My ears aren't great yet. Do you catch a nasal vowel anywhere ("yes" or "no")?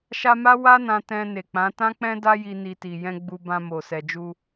yes